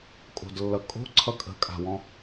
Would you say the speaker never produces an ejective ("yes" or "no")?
no